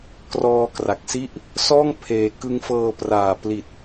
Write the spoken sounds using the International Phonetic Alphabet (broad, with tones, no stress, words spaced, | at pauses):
krɔː˧ kra˨˩k̚si˥˩ʔ | sɔː˥˩ŋ pʰeː˧ kɯ˦˥ŋfɤː˧praː˨˩ pli˨˩t̚